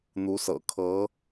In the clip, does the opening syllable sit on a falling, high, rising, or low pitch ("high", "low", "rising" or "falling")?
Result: rising